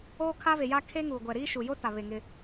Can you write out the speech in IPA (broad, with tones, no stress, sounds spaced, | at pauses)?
oː˦ kʰ a˦ v e˨ j a˦ kʰ e˦ ŋ uː˨ ɡʷ ɛ˨ ɾ iː˦ ʃ u˨ j o˦ t a˨ β e˨ ŋ ɪ˦